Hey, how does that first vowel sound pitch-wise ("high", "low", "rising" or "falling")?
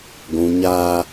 low